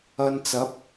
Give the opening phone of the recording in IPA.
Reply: ɐ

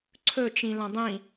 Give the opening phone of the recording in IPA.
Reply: ǀʰ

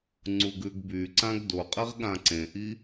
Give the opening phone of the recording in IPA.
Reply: ŋ͡ǀ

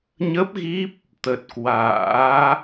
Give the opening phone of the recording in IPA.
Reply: ɲ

